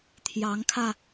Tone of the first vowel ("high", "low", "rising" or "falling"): rising